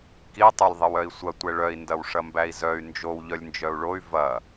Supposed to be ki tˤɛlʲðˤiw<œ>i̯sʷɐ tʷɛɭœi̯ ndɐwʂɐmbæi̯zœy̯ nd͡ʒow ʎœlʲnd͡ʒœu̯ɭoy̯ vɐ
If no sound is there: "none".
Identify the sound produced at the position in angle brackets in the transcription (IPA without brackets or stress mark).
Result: œ